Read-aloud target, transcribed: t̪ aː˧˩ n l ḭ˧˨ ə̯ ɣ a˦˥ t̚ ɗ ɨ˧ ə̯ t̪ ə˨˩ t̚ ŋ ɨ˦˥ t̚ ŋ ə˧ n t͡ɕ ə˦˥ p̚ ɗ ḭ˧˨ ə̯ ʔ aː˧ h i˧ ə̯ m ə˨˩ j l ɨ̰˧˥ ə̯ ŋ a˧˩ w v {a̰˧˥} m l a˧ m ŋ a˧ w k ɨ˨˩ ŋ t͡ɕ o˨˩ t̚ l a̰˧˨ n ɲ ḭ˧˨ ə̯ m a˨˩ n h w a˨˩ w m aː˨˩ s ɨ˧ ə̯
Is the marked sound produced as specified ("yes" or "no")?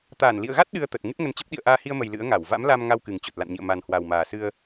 yes